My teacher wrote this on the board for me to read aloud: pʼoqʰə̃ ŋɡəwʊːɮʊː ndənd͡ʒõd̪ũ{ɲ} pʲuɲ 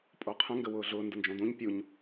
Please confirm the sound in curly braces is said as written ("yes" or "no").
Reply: yes